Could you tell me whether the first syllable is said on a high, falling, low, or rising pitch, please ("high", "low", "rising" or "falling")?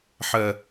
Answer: low